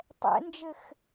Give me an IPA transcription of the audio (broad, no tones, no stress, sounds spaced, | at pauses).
tˤ ɛ̰ n d͡ʒ ɘ x